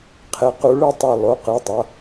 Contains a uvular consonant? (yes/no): yes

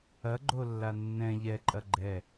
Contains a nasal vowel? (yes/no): yes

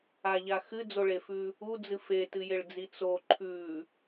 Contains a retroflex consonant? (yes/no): yes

